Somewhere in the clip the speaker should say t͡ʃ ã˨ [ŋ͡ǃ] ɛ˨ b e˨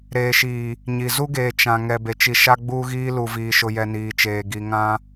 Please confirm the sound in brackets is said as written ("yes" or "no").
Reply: no